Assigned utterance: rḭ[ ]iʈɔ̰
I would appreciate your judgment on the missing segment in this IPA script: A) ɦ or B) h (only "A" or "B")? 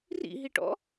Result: A